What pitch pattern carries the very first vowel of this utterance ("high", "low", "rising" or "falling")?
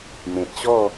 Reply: low